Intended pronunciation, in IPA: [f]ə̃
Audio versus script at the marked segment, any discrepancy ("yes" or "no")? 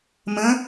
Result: yes